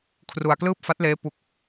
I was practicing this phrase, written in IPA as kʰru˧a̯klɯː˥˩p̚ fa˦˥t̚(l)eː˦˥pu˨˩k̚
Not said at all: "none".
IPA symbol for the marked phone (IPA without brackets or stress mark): l